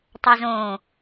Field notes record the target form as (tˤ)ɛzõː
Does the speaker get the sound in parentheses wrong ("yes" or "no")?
no